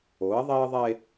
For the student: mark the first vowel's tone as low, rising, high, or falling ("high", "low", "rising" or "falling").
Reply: rising